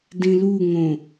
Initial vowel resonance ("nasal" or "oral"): nasal